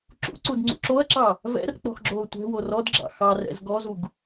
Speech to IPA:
ǁ ṵ ǀ u d ŋ͡ǀ ṵ ǁ o ɐ̯ ǁ ɑ | v ɛ̰ r k͡p ɔ̤ x ɡ͡ǁ oː tʷ ɛ̤ w o r ɔ d ɡ͡ǁ ɑ̰ x ɑ r ɛ̰ z ɡ ɔ z u ɡ

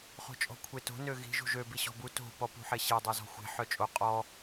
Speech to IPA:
χ o̤ t͡ʃʼ ɔ̤ kʷʰ e t o̤ n ø ɣ i̤ ʒ ṳ ʒ ø b i ɕ ɔ̤ b u t o̤ p ɔ p ṳ ħ e ɕ e dˤ ø z ɔ̤ xʷ e̤ ħ œ t͡ʃʼ o qʼ ɔ

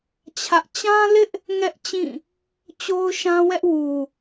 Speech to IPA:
t͡ɕʰ ä˦ ʔ t͡ɕ ã˦ l ɪ˦ ʔ | ŋ ɛ˦ ʔ t͡ɕ ĩ˦˨ | t͡ɕ o˦ ʊ̯ ʃ ã˦ w ɛ˦ ʔ w u˨

